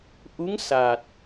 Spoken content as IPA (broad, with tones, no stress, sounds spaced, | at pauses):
ʔ u˧˥ ŋ s a˨˩ t̚